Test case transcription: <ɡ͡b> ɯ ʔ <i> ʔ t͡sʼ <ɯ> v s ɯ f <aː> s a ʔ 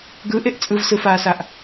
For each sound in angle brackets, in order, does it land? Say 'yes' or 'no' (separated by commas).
no, no, yes, yes